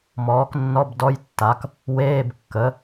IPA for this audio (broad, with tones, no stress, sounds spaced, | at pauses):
m ɔː˩˥ k nː ɔ˧˥˧ b d ɔ˧˥˧ j tː a˩˥ k | w eː˧˥˧ b kː ə˩˥